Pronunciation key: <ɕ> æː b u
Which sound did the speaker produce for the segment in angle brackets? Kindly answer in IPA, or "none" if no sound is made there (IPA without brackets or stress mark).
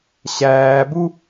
ɕ